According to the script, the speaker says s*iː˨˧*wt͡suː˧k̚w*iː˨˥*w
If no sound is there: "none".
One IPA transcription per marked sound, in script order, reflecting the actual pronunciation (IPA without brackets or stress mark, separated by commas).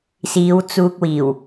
iː˨˧, iː˨˩